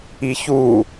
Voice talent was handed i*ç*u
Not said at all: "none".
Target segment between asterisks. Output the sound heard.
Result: ç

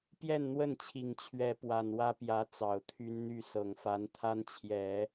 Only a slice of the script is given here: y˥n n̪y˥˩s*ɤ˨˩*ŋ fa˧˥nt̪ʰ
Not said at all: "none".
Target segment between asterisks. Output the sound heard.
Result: ɤ˨˩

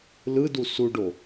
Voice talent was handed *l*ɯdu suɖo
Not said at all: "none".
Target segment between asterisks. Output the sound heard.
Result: l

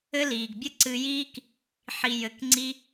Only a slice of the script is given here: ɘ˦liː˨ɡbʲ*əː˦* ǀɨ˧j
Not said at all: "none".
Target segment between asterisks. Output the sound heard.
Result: ə˦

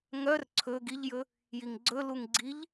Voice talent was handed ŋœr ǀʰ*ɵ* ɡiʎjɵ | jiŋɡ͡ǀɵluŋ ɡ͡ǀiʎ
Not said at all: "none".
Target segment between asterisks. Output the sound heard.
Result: ɵ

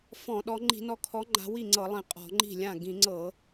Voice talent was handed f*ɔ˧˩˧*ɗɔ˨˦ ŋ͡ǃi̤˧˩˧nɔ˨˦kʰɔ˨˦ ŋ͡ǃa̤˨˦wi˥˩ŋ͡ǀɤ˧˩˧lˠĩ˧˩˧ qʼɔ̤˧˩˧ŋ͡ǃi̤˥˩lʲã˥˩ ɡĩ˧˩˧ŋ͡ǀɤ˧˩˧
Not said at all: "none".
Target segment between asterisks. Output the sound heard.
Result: ɔ̃˧˩˧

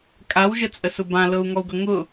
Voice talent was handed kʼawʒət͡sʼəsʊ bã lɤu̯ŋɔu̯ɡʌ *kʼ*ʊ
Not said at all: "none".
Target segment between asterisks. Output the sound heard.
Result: ŋ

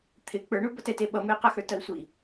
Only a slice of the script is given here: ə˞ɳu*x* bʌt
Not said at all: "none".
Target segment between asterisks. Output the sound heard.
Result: none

